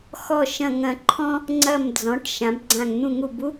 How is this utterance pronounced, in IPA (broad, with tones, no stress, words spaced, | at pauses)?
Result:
xɔ˧˩ ʃɐ̃˧˩ ŋɐ̃˧˩ǃʰɔ̃˦ | ŋ͡ǀɐ˧˩md͡zɔ̃˩˧ʈ ʃã˩˧bɡ͡ǀã˧˩ŋ n̪ũ˧˩ŋu˧˩bu˦